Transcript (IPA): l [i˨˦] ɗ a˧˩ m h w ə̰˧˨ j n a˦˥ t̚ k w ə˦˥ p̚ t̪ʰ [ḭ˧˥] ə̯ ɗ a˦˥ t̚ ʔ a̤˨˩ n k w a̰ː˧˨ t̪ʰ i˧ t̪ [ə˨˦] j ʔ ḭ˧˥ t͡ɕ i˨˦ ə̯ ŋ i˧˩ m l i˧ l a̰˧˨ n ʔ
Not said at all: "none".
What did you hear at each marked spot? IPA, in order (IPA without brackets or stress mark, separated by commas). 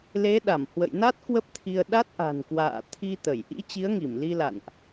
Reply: e˨˦, i˧, ə˧˩